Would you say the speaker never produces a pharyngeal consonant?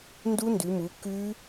yes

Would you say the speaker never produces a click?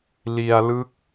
yes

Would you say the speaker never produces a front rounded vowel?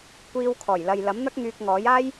no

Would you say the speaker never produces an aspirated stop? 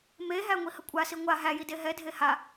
yes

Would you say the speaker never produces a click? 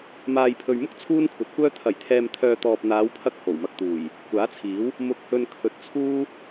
yes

